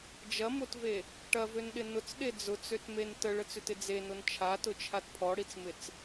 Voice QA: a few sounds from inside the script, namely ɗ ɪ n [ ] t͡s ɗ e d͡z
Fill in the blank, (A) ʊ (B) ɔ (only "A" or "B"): A